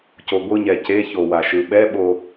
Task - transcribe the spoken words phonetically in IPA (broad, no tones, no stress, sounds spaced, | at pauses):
c o ɡʷ ɯ ɲ ɛ c e ç o w a ʃ ɯ ɓ ɛ ɓ o